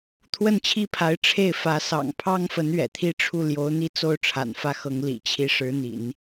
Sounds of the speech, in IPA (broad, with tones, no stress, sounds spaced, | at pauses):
t̪ʰ w ə˥˩ n t͡ɕʰ i˥ pʰ a˧˥ ɪ̯ ʈ͡ʂʰ e˥˩ ɪ̯ f ä˧˥ s ɑ̰˨˩ ŋ pʰ ɑ˥ ŋ f ə˧˥ n ɥ ɛ̰˨˩ t̪ʰ i˥ ʈ͡ʂʰ u˥˩ l j o˧˥ ʊ̯ n̪ i˥˧ t͡s o˥˩ ʊ̯ ʈ͡ʂʰ a̰˨˩ n f ä˥˩ x ɤ˧˥ ŋ l ḭ˨˩ t͡ɕʰ i˧˥ ʂ ɻ̩˧˥ n̪ ḭ˨˩˦ n